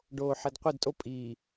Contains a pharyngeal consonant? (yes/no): yes